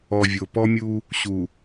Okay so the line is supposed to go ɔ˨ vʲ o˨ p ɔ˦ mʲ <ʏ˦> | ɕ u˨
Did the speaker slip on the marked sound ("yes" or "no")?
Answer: yes